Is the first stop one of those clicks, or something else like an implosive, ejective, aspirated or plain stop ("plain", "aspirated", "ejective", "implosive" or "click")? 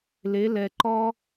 click